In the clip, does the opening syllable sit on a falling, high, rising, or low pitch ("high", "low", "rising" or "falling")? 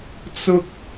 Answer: high